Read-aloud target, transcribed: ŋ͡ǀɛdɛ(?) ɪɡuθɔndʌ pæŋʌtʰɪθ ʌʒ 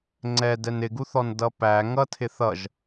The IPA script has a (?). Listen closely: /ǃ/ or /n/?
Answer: n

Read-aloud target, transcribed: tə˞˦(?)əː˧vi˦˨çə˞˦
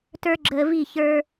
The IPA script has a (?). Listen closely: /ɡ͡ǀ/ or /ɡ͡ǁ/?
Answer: ɡ͡ǁ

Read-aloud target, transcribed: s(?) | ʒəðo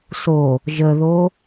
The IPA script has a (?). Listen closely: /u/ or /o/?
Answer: o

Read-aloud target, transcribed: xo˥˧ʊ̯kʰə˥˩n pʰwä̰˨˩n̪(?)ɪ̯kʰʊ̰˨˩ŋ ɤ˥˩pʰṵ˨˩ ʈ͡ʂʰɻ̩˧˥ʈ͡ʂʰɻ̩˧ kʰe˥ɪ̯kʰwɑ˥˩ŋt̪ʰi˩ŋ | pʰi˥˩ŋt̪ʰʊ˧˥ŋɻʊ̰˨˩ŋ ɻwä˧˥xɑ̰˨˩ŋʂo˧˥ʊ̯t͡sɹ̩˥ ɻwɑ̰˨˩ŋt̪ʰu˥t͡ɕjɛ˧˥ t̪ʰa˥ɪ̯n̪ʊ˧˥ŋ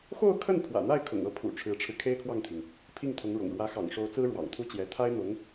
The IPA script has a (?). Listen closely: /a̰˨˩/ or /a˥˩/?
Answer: a˥˩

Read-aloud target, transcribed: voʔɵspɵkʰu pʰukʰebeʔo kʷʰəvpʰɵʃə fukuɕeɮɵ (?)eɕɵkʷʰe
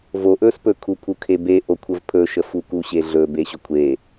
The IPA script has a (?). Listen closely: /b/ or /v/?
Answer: b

